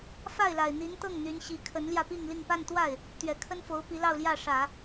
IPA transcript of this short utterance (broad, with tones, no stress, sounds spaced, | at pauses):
f a˥˩ ɪ̯ l a˨˩ ɪ̯ n̪ i˧˥ n t̪ ɤ˥˩ ŋ n̪ y˧˥ n ɕ i˧˥ kʰ ə˧˥ n l j ä˧ p i˥˧ ŋ l i˥˧ ŋ p a˥˧ n t̪ w a˥˩ ɪ̯ | t̪ ɥ ɛ˨˩ kʰ ə˥ n f o˧˥ ʊ̯ p i˧˥ l ɑ˥˧ ʊ̯ l j ä˥˩ ʂ ä˨˩˦